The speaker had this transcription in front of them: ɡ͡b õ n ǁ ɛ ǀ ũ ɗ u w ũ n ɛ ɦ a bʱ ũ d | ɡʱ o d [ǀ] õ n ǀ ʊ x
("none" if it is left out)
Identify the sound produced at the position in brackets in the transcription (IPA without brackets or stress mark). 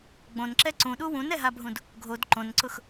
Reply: ǃ